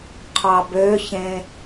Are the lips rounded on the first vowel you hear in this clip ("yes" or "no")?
no